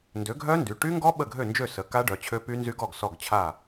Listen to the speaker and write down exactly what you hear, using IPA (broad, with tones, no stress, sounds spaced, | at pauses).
n d ø˩˥ ɡʱ œ˦˥ n d y˩˧˩ ʈ y˦˥ ŋ ɡ ɔ˦˥ ɓ ə˥˩ ɡʱ ø˥˩ n d͡ʒ ø˥˩ s ə˩˥ k a˦˥ ɖ œ˩˧˩ t͡ɕʰ ø˦˥ p y˦˥ n z y˦˥ ɡ ɔ˥˩ ɡ s ɔ˥˩ ɡ t͡ɕʰ a˥˩